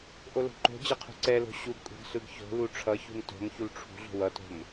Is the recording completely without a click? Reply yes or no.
no